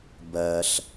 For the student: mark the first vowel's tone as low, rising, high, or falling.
low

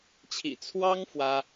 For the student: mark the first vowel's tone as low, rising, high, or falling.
low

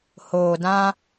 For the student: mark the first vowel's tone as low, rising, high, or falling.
low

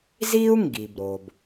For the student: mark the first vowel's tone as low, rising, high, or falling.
high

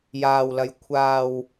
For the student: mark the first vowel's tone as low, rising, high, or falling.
low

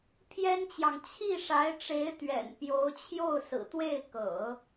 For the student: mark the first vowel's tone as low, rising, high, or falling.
high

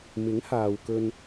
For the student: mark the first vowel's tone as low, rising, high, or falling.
rising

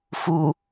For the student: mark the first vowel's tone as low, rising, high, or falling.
low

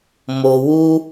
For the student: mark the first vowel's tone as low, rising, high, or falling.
low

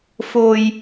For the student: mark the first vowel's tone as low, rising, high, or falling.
low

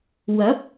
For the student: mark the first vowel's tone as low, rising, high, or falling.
rising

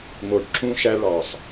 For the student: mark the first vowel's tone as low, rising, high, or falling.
low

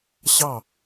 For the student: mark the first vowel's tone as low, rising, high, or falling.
falling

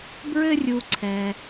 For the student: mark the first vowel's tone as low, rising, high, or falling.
high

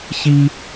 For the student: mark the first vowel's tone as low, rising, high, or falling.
high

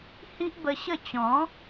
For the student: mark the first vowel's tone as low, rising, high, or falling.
high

